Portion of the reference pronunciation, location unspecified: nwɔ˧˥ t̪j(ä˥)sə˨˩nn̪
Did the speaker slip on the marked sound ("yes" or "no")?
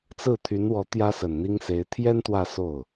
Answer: no